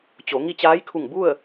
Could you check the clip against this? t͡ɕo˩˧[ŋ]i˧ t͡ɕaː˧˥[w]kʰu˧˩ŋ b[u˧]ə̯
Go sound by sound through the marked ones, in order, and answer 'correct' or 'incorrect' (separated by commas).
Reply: correct, incorrect, incorrect